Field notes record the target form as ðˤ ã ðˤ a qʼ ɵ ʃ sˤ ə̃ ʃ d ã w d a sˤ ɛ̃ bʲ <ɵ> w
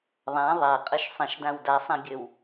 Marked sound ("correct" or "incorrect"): correct